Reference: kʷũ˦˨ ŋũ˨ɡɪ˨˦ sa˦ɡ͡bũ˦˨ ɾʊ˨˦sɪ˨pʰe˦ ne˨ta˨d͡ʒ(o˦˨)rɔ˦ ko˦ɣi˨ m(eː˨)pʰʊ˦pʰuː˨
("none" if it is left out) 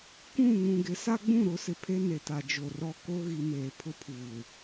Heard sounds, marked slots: o˨, eː˨

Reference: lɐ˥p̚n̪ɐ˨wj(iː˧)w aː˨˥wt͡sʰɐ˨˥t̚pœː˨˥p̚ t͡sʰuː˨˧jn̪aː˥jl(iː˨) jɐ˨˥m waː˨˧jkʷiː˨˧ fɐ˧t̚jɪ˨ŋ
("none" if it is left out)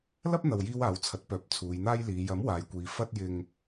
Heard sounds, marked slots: iː˧, iː˨˧

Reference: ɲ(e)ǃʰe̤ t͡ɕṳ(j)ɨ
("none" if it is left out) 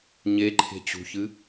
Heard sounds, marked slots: e, ç

